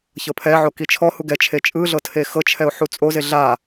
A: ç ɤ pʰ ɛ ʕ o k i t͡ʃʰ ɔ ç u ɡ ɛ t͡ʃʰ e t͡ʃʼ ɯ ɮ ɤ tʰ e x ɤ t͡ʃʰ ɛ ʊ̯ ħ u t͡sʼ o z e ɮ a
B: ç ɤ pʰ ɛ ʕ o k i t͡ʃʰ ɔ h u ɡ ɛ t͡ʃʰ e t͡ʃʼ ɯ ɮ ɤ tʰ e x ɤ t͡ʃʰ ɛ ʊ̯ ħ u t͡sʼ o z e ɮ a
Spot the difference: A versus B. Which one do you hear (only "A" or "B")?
B